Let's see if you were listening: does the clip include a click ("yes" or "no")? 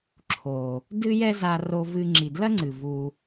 yes